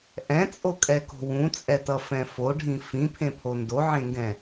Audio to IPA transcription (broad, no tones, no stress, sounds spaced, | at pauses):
ʔ ɛ̃ t͡sʼ o kʼ ɛ k o̤ w ũ t͡sʼ ɛ t ʌ f ɛ̃ f o ɖʱ ĩ f ĩ pʰ ẽ pʰ o n d o ʕ ẽ ŋ ɡ ɛ̃